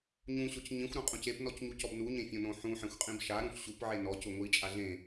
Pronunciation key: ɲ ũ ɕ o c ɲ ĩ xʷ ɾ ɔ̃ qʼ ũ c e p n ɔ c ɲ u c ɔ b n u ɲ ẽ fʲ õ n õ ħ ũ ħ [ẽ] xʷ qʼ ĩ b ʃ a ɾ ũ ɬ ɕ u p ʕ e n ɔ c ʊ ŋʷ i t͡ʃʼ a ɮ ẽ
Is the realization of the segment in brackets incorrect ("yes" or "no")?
no